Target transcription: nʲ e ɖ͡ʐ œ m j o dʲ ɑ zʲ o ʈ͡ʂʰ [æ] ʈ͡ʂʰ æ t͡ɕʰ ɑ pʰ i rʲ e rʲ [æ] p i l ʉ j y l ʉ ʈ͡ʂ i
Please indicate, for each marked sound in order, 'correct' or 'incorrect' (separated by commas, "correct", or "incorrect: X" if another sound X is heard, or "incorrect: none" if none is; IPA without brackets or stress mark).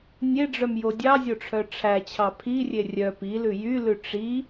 incorrect: œ, incorrect: œ